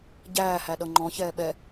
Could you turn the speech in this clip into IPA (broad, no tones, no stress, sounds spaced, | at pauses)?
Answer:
ɟ æː h æ ɗ ʌ ŋ͡ǃ ɔ̃ ç ɛː ɓ ɛ